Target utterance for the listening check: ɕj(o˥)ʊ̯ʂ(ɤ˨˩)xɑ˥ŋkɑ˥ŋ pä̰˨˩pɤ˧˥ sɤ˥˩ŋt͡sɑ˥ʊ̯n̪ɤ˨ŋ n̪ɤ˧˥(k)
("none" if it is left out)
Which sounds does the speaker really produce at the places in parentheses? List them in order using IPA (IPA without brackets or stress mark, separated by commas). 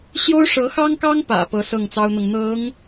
o˥, ɤ˧˥, ŋ